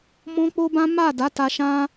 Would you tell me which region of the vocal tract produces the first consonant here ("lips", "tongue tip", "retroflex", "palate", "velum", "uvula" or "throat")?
lips